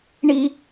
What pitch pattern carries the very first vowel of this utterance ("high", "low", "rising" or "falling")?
high